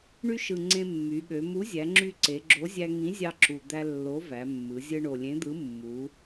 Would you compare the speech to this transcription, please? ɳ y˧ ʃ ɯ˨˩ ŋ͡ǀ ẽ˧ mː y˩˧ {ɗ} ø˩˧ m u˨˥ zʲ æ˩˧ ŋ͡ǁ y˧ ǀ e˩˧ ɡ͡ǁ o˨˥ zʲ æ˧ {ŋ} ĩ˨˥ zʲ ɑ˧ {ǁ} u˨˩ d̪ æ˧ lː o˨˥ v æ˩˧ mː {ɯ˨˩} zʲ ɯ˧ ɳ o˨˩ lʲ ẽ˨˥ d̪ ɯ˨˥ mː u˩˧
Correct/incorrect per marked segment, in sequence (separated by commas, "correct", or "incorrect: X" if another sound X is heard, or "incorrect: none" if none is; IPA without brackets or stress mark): incorrect: ɠ, correct, correct, incorrect: ɯ˩˧